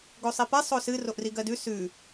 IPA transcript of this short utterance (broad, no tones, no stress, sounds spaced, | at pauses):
ɡ o sˤ i p ɛ sˤ o s ɨ r o ʔ r i ɡ ɜ d ʉ s ʉ